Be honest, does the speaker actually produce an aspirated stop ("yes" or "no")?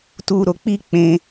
no